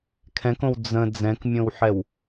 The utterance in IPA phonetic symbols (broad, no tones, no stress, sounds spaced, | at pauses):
kʰ ɛ̃ k õ w d͡z ə̃ d͡z ɛ̃ k mʲ õ w ħ ɛ w